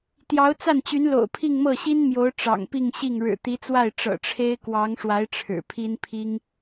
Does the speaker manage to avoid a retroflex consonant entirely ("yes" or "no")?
no